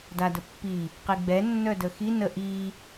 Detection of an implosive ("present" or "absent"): absent